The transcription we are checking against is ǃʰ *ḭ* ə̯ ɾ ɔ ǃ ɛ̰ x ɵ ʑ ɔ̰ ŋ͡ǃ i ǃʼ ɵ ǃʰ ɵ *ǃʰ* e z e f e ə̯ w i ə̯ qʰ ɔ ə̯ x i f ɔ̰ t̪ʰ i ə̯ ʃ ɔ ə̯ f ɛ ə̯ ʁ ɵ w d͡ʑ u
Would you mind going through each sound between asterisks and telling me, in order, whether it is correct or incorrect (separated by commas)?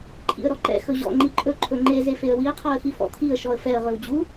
correct, incorrect